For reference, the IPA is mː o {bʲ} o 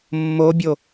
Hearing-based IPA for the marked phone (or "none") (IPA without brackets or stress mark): bʲ